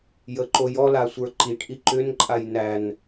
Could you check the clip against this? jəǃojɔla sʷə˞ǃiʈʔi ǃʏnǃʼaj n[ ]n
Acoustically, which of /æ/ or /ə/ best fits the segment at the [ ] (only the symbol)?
æ